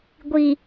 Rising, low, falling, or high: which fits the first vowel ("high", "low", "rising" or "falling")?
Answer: low